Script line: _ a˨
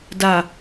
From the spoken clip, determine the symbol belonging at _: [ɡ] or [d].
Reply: d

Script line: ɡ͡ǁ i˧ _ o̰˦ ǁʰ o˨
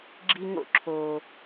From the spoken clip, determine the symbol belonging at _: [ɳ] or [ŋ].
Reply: ŋ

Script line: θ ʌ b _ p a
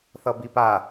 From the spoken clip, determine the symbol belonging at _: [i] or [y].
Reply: i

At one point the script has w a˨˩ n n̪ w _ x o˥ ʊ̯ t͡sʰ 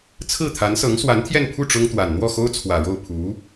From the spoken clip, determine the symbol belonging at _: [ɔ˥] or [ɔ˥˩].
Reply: ɔ˥˩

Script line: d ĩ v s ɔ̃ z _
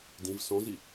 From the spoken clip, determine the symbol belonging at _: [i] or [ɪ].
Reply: i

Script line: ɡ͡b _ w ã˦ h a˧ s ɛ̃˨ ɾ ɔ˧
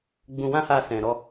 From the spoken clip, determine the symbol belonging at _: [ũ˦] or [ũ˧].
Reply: ũ˧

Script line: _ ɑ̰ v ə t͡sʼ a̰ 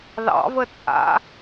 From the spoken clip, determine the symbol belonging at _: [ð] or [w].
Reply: ð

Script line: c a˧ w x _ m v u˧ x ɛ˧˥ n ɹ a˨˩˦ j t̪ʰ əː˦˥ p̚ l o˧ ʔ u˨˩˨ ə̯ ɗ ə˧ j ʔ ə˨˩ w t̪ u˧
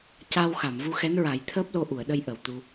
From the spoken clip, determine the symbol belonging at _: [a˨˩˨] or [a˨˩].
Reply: a˨˩˨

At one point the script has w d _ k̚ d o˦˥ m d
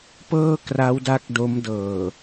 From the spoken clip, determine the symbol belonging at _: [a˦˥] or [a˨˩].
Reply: a˦˥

